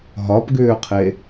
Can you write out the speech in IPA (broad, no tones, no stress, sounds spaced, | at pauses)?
ɦ ɒ p ɡ ʏː qʰ e